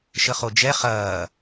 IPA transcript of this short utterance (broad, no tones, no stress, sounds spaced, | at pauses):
ʃ ə χ o d͡ʒ ɛ χ ɐː